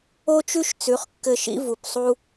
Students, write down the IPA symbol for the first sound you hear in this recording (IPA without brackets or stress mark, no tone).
o